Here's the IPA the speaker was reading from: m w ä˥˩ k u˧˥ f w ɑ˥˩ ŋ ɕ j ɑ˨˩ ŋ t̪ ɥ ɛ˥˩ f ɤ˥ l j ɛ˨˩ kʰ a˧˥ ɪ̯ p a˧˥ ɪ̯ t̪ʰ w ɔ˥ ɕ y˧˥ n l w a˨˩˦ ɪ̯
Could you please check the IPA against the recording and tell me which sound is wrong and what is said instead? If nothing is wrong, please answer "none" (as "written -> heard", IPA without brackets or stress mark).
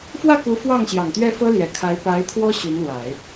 m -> f